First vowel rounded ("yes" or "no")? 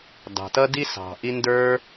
no